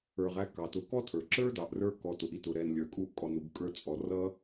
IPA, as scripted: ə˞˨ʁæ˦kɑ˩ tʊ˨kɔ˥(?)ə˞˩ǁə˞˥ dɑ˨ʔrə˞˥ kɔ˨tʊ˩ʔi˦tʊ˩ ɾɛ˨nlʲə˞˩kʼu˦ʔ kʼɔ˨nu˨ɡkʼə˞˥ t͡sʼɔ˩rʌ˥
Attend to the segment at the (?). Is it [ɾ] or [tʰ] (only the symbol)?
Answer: tʰ